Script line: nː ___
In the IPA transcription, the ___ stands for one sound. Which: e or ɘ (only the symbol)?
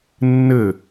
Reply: ɘ